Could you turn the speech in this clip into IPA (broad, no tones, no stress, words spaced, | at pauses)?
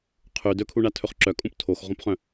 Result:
qʰʉ dɵkʰuɳatʰɵχ ǁœkʼũp tʰoxʁõpχœ̃